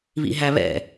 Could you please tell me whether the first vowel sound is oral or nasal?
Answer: oral